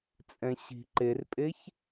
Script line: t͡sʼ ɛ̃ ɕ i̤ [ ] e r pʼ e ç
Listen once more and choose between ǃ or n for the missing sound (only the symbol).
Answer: ǃ